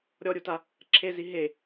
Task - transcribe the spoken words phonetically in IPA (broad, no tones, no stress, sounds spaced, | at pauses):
ɾʲ ɔ ɾʲ u t a | ǁʰ e z i ɦ e